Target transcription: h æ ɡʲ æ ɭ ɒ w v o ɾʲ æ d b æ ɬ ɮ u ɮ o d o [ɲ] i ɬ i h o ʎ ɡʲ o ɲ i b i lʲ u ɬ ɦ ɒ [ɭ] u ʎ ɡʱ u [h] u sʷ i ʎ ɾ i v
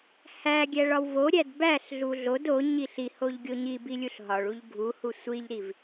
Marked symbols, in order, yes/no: yes, yes, yes

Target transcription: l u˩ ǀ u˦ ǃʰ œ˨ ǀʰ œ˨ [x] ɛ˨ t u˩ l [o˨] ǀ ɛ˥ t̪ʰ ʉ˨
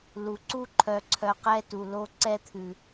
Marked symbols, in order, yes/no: no, yes

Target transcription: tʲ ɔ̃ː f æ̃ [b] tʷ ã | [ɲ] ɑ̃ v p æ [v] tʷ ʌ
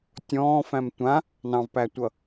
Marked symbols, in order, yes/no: no, no, no

